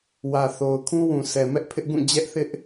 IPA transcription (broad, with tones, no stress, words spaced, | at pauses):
wä˨θo˨ʊ̯ kʰũ˦wũ˨sʰɛ˨ mɛ˦ʔpʰɪ˦ʔɡũ˦˨ d͡ʑɛ˦ʔθɪ˦ʔ